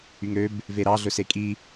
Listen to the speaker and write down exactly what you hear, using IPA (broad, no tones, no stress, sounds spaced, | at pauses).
y ŋ ɾ ø b | v e ɾ ɑ ɮ ɵ s e kʼ i